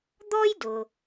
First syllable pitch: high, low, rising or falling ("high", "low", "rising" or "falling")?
high